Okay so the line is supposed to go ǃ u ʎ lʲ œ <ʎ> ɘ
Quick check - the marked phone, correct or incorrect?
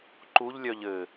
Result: correct